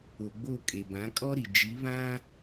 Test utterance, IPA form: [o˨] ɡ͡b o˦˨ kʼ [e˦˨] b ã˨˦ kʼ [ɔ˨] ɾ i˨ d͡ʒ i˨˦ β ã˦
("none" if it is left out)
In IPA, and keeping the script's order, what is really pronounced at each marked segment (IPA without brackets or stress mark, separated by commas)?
o˨, e˨, ɔ˦